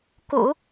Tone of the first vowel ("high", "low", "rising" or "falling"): low